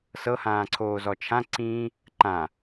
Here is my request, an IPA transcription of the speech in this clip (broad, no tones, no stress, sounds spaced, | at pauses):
s ɤ h ãː ǀʰ oː z ɔ t͡ʃʰ ã ǀ ĩː | ǃ ã